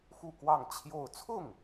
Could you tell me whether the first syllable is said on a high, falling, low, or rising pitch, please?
falling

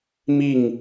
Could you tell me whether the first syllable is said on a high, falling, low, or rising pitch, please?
falling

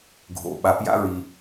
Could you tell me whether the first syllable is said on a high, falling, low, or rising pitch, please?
low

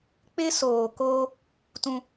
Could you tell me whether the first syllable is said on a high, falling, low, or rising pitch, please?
high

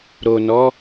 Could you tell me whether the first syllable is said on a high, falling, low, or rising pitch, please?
low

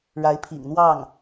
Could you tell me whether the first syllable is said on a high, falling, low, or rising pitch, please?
rising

